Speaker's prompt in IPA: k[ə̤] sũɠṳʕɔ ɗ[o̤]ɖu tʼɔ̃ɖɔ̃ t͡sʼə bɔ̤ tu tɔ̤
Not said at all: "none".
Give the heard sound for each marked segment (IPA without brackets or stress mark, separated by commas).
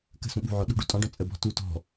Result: ə̤, ṳ